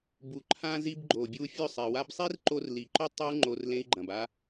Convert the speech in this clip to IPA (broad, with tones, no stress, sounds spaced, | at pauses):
b u˨ ǃʰ ã˧ z i˧ b ɡ͡ǃ o˨ bʲ u˧ fʲ ɵ˦˨ sˤ i˨ w a˦ b sˤ i˦ r ǃ o˧ r l i˨ ǃ o˦ tˤ ɐ˦ u̯ ŋ͡ǃ o˧ r l ẽ˦ i̯ ɡ͡ǃ ɐ̃˨ b a˦